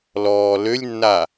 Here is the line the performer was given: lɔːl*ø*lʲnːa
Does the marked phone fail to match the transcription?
no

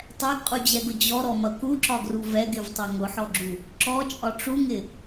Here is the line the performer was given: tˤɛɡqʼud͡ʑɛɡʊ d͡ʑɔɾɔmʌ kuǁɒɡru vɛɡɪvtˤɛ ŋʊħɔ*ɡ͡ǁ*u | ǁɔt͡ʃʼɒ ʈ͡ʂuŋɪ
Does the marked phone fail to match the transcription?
no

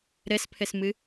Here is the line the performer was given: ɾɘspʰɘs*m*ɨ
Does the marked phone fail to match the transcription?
no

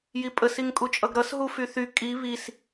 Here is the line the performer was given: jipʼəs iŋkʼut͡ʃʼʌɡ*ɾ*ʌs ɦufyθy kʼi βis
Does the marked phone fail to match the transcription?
no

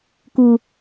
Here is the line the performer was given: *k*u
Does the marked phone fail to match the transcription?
no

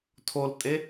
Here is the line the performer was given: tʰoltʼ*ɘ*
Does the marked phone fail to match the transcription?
yes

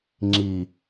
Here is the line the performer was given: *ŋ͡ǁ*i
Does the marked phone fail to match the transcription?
no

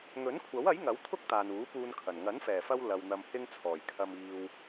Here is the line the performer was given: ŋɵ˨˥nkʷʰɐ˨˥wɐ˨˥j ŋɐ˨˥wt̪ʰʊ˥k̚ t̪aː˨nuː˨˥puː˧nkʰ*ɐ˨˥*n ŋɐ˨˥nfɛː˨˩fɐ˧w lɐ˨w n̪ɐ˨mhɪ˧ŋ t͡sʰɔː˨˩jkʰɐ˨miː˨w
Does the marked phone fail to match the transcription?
yes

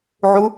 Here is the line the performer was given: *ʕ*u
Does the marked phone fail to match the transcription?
no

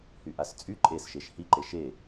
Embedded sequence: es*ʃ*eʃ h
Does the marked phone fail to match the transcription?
no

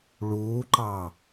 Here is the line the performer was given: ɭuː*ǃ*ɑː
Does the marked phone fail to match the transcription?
no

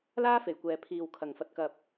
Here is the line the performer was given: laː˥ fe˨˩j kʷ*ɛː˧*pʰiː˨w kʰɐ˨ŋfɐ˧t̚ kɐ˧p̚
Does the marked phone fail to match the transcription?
yes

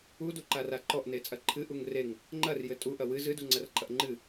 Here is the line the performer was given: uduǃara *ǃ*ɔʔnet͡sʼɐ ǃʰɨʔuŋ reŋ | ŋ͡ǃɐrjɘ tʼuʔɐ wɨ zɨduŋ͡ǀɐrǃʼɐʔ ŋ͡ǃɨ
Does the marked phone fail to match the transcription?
no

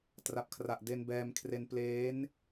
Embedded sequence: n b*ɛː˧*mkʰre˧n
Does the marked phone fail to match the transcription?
no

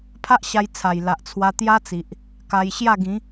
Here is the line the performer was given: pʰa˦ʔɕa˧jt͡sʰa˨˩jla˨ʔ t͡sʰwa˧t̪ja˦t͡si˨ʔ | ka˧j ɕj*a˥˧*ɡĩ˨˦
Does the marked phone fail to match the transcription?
no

